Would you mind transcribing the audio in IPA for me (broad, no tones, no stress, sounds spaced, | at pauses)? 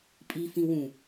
pʼ i f ĩ w ũ